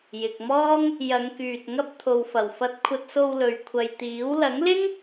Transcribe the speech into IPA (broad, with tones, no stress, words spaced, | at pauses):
jɪ˨k̚mɔː˥ŋ | jɐ˨˧ŋkyː˨t̚ ŋɐ˧p̚ t̪ʰo˨wfɐ˨˩w fɐ˧t̚kʷʰɐ˧t̚so˧w lɵ˨ɥkʷʰɐ˨jt̪iː˨˥w lɐ˨˥ŋlɪ˥ŋ